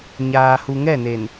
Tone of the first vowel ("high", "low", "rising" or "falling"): low